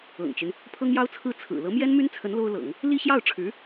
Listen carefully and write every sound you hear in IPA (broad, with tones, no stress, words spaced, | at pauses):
ɤ̰˨˩ŋt͡ɕy˦n | pʰɤ˥ŋjɑ˥ʊ̯t͡sʰɹ̩˥˩ t͡sʰɹ̩˨˩ lɤ˧˥mjɛ˥nmy˥nt͡sʰə˧˥n lo˥ʊ̯lɤ̰˨˩˦ŋ | li˥ɕjɑ˥˩ʊ̯ʈ͡ʂʰɻ̩˧˥